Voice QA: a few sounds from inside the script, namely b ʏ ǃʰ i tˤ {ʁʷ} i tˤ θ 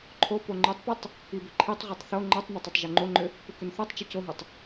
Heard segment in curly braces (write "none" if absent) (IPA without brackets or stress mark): ʁʷ